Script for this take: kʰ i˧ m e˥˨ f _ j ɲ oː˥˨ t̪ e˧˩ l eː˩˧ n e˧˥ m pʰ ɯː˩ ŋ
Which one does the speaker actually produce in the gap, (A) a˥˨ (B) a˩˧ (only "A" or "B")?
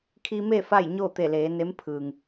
A